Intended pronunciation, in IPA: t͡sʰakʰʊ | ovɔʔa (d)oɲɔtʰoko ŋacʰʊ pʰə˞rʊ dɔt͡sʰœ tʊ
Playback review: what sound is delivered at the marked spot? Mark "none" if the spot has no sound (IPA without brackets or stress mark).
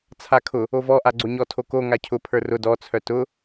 ɡ͡ǀ